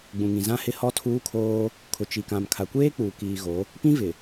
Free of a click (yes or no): yes